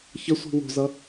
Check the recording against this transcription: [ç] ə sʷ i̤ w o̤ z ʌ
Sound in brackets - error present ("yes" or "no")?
no